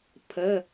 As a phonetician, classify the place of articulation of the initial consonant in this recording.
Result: labial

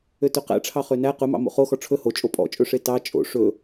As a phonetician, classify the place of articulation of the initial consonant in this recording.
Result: alveolar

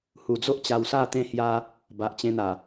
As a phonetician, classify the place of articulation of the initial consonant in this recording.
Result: glottal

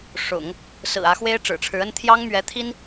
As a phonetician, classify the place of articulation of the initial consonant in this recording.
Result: retroflex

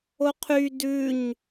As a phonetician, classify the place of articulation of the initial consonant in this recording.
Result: uvular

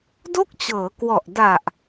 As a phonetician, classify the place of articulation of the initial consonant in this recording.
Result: alveolar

